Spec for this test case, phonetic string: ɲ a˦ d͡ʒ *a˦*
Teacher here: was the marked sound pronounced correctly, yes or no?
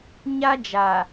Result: no